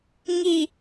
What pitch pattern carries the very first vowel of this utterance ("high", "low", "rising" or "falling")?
low